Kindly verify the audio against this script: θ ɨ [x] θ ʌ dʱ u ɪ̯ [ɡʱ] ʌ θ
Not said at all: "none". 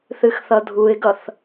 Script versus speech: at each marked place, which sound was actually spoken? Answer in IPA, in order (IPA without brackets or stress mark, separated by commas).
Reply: x, ɡ